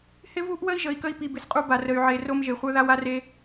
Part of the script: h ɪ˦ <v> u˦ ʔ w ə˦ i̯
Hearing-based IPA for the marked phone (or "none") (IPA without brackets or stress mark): v